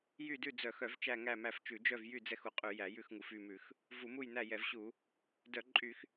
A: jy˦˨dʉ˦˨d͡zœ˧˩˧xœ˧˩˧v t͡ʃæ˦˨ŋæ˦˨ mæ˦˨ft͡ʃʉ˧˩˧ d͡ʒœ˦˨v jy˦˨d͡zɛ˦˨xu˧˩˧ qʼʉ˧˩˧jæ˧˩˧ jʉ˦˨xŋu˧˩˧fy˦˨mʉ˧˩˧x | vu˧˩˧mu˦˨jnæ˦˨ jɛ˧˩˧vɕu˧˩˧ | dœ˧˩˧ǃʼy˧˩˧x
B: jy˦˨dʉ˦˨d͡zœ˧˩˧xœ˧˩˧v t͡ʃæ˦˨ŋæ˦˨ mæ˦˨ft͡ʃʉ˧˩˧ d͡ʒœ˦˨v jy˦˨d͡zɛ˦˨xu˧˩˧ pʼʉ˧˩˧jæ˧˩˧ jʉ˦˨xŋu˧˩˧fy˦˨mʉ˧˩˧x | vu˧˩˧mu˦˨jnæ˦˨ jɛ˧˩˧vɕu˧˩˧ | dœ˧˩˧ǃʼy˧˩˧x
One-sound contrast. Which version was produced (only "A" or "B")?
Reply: A